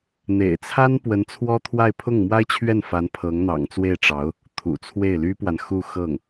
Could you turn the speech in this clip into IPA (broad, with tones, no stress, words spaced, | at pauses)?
n̪ḛ˨˩ɪ̯t͡sʰa˥n pwə˧˥nt͡sʰwɔ˥t̪ʰwa˥˧ɪ̯ pʰʊ˥˩ŋ mwa˥ɪ̯t͡ɕʰɥɛ˥˩n fa˧˥npʰɤ˧˥ŋn̪ɑ̰˨˩ŋt͡swe˥˩ɪ̯ ʈ͡ʂɑ˧˥ʊ̯ | t̪ʰṵ˨˩t͡sʰwe˥˩ɪ̯ly˥pwa˨n xu˥˧ xɤ˥˩ŋ